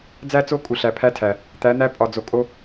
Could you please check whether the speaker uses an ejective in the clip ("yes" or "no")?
yes